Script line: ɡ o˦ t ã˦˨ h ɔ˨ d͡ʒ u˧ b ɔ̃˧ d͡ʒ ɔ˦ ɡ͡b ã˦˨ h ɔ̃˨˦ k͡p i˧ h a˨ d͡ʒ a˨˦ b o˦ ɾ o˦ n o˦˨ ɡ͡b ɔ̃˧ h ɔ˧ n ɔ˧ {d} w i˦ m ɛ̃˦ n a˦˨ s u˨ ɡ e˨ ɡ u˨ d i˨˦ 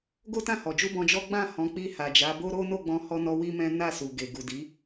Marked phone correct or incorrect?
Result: incorrect